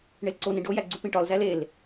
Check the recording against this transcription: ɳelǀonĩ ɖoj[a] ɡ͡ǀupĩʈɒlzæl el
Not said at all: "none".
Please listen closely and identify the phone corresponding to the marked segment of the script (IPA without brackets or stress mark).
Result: æ